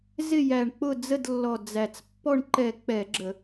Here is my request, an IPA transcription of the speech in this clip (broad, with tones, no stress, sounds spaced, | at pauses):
z ɪ˦˨ j æ˨˩ ɳ k͡p ʊ˦˨ d͡z ə˦˨ d lː ɔ˨˩ d͡z æ˨˩ t͡s pː ɔ˦˨ ɳ ǃ ɛ˧˩˧ k͡p ɛ˧˩˧ ɡ͡ǁ ə˧˩˧